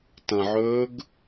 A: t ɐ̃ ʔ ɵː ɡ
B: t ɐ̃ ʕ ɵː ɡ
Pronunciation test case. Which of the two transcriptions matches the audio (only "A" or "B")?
B